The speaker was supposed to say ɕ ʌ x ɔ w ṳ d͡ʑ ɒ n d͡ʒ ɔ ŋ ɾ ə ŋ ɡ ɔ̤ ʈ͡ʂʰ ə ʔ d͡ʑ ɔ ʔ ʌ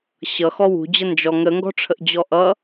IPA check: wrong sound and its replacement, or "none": ɒ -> ʌ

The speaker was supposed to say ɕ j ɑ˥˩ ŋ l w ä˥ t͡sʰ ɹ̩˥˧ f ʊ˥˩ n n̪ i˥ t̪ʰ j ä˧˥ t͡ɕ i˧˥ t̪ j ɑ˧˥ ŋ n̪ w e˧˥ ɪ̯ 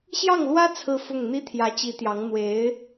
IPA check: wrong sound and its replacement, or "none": n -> ŋ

